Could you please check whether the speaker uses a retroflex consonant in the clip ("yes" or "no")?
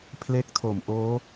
no